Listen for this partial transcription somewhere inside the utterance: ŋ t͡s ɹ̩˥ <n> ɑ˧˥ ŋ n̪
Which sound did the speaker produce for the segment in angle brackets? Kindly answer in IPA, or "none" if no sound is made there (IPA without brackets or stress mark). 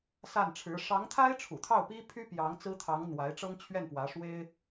t̪ʰ